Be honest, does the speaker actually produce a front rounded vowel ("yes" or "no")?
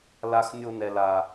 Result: no